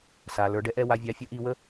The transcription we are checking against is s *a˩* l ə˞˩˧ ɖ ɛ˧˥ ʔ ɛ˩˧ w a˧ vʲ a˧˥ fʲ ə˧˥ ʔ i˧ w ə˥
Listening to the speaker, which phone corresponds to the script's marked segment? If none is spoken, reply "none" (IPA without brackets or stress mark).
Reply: a˩